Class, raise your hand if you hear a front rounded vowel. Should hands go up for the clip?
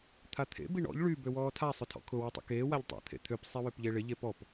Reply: yes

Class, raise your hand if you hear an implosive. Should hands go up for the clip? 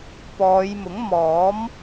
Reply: no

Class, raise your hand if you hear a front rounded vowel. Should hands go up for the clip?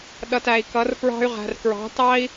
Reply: yes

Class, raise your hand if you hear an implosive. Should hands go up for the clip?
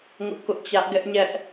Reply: no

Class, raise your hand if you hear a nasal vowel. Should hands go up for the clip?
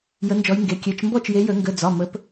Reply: no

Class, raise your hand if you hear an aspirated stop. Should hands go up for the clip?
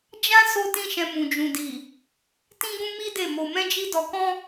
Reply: no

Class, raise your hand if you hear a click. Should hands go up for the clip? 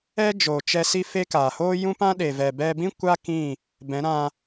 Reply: no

